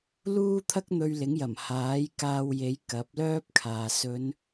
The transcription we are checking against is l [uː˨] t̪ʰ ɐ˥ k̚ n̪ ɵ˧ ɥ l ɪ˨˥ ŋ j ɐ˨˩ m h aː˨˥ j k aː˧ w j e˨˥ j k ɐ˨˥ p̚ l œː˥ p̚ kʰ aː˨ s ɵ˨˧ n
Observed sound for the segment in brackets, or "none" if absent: uː˥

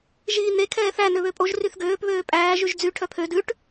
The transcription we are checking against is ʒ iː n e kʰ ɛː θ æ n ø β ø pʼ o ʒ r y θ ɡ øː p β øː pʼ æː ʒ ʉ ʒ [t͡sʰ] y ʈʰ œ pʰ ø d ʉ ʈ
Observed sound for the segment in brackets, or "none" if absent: d͡z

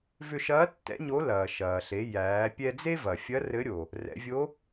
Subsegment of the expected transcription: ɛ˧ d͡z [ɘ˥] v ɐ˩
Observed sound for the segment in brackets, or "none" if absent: e˥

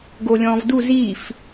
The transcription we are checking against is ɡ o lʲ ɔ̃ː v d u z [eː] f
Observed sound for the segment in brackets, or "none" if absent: iː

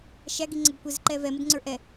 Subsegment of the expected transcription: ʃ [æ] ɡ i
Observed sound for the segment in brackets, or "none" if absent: æ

